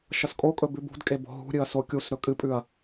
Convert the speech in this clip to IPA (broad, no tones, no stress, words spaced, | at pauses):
ʃɐskʼokʼɵ bʉbṳdkʼe bo̤ɦṳɾʲɨɐ̯ sokʲusɾɵ kʼɨpʼʉɐ̯